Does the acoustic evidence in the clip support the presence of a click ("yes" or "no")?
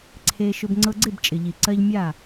yes